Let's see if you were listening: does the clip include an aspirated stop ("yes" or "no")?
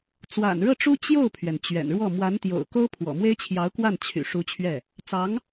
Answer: yes